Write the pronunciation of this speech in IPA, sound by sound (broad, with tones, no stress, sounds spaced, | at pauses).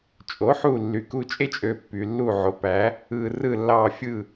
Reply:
t͡ʃʼ o˩˥ ħ u˧˩ lː y˩ k u˧˩ t͡ʃʼ e˦ t͡ʃʼ ø˩˧ pː y˩ lː u˧˩ ʕ o˩˧ p æ˩˧ | ɯ˩ r ɯ˧˩ lː ɑ˧˩ fʲ ɯ˧˩